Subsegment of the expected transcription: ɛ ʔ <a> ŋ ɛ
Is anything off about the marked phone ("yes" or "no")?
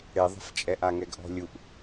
no